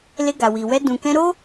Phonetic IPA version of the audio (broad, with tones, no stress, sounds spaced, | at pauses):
l e˧ ɡ a˨ w i˨ w ɛ˧ d ũ˨ k ɛ̃˧ ɾ o˦